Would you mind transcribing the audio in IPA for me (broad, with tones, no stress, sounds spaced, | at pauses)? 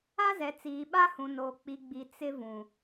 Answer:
a˦ z ɛ˨ t͡s iː˨ ɓ a˦ h ũ˨ n oː˨ k͡p i˨ ɡ͡b i˨ t͡s ɪ˦ v ũ˨